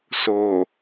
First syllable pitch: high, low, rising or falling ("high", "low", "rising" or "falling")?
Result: low